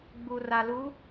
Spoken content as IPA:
ɡ͡b u˨ r a˨ l u˨˦

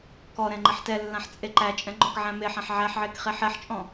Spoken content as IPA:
k ɔ ɾ ɛ̃ ŋ͡ǃ ɛ ħ t ɛ lː ã ħ t͡sʼ e ǃ æ t͡ʃʼ ɛ̃ ŋ͡ǃ ɔ̃ k ʕ æ̃ m e ħ ã ħ ʕ æ ħ ʕ e k χ e ħ ɛ ħ t͡ʃʼ ɔ̃

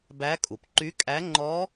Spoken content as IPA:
b æ˧˥ kʼ u˩ p ǃ y˧˥ kʼ æ˧˥ ŋ͡ǃ ɔ˧˥

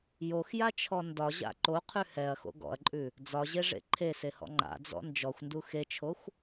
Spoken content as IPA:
j o x j a t͡ʃʰ ɔ n d ɒ ʑ a̰ ǃ o qʰ ʉ h ɛ ɐ̯ x o̰ ɡ ɔ̰ ɐ̯ ǃʼ ʉ | d͡z ɒ ʑ e ʐ ḛ ǃʰ e s e h ɔ̰ ŋ͡ǃ a̰ d͡z ɔ̰ n d͡ʒ ɔ xʷ n d u x e t͡ʃʰ o xʷ

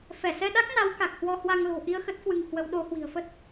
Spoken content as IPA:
f ɛ˧˩ s ɛ˧ ɗ a˦˥ k̚ n a˨˦ w k a˨˩ k̚ h w ɔ˧ h w a˧ ŋ l o̤˨˩ ʔ i˧ ə̯ x ə˦˥ t̚ k w ɨ˧ ŋ h w ə˨˦ w ɗ o˨˦ h w i̤˨˩ ə̯ f ə˦˥ t̚

